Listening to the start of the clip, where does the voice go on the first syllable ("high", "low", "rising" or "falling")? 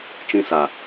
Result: high